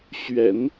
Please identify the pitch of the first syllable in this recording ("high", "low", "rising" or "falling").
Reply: low